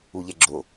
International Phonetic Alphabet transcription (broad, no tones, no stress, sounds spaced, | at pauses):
u ʎ ɛ ɡ͡ǁ o